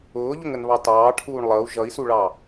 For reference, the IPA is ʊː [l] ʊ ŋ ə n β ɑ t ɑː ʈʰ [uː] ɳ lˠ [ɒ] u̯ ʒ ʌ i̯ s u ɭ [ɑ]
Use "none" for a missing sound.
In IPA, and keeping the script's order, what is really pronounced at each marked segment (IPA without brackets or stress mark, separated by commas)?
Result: ʎ, uː, ʌ, ɑ